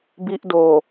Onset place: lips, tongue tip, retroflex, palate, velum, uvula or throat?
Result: lips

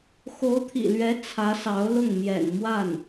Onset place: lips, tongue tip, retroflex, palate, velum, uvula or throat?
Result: velum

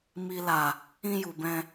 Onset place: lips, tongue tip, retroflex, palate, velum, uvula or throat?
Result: lips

